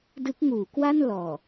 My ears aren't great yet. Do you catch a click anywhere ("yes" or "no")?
no